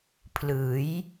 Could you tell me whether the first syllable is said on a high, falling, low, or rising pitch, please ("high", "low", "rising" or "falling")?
rising